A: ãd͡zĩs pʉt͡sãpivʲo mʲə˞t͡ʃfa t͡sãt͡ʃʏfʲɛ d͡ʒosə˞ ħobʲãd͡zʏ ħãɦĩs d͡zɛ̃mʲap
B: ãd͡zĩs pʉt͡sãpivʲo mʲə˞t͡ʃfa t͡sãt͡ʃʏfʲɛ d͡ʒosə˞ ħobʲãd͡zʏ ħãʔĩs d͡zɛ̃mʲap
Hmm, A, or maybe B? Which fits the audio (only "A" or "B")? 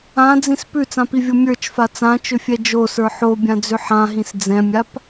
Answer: A